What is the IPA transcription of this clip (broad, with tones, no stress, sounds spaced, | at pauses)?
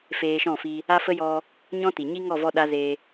f eː˧ ʃ ɔ̃˦˨ f i˧ | a˦ f ə˦ j ɔ˧ | ɲ ɔ̃˦ t i˨ ɲ i˦ ŋ ɔ˦˨ v ɔ˧ ɗ a˦ z e˧